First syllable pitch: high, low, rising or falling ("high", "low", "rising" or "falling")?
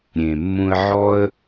low